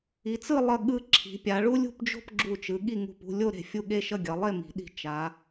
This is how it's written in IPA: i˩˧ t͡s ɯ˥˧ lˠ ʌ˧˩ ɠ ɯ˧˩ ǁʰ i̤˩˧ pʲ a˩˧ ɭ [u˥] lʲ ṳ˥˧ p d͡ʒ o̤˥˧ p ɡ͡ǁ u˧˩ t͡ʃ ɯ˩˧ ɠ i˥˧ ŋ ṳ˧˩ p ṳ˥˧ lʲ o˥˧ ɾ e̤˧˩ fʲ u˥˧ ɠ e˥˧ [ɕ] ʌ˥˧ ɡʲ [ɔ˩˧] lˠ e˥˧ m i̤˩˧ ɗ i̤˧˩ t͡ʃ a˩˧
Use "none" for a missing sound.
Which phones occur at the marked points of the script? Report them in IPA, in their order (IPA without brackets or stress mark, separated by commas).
u˥, ʃ, ʌ˩˧